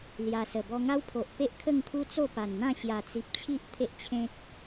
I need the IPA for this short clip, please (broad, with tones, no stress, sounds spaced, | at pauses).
l j a˧ s ə˨˩ b ɔ˧ ŋ a˦ w pʰ o˨ ʔ p e˦ ʔ kʰ ə˥˧ ŋ t̪ʰ u˦ t͡s o˥˧ p a˨˩ n n̪ ã˥˧ ɕ j a˨˩ t͡s i˨ p̚ t͡ɕʰ i˦ ʔ t̪ʰ e˦ ʔ t͡ɕʰ ẽ˦ k̚